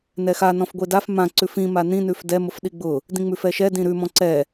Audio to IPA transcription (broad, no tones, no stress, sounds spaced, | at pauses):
n ɛ x a n ɔ̃ f ɡʷ e d a f m ã ǀ ʉ f ĩ m a n ĩ n ʉ f d ɛ m ʊ f ɗ i ɡ͡b ʊ | d ĩ ŋ͡m ʉ f ɛ ʃ ɛ d ĩ ɾ ʉ m ɔ̃ ǀ ɛ